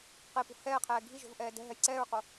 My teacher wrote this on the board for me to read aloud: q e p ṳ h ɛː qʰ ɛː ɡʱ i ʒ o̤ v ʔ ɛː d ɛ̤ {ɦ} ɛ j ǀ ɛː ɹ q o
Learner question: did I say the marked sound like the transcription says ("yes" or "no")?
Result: yes